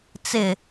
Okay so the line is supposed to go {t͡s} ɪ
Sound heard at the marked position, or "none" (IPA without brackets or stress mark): t͡s